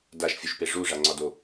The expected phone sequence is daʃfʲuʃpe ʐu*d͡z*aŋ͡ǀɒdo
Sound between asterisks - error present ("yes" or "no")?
yes